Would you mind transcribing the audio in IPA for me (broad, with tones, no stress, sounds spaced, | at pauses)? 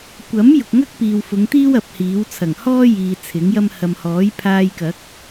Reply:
kʷ ɐ˨˥ m j ʊ˨ k̚ ŋ ɐ˥ k̚ p iː˨ w f ʊ˨˧ ŋ t̪ iː˥ w ɐ˨˥ p̚ h iː˨˥ w t͡sʰ ɐ˨˩ ŋ h ɔː˥ j iː˨ t͡sʰ ɪ˨˥ ŋ j ɐ˥ m h ɐ˨ m h ɔː˨˥ j pʰ aː˧ j k ɐ˨˥ k̚